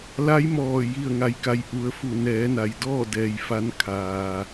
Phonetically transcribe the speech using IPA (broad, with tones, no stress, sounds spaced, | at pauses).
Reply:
l a˧˥ j m ɔː˧˩ j i˧˩ ə̯ ŋ a˩˧ j k a˩˧ j ʔ u˩˧ ə̯ f u˧˩ n ɛː˩˧ n a˩ j d ɔː˥˨ d ɛː˩ j f a˧ n kʰ aː˩